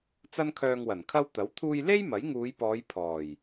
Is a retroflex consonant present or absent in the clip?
absent